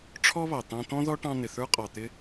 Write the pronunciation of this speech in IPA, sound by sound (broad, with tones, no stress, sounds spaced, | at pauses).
ʈ͡ʂʰ ɔ˥ β ɑ˨ t̪ ɑ̃˦ t̪ ɔ̃˥ ð ɔ˥ ʈ ɑ̃˦ n̪ ɪ˨ θ ə˞˥ qʼ ɑ˨ t̪ ɪ˥